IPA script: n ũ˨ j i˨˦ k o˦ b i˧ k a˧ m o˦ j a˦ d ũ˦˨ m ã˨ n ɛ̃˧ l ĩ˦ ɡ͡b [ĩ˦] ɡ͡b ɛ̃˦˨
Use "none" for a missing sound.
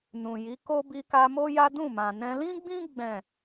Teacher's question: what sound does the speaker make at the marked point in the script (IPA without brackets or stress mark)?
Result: ĩ˦